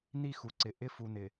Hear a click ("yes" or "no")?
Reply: yes